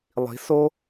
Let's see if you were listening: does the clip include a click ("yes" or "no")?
no